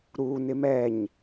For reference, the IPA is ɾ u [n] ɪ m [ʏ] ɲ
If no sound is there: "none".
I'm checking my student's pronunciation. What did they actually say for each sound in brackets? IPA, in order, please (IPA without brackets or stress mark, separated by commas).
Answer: n, ɛ